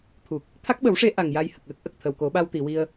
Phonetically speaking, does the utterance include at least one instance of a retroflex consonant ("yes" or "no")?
yes